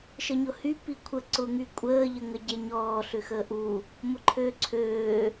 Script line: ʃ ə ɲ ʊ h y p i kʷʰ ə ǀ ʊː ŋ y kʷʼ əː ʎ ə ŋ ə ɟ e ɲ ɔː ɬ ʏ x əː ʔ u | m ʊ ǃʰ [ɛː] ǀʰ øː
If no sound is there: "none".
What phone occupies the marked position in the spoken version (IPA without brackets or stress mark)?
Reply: øː